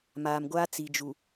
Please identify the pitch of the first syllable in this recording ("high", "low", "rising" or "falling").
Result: low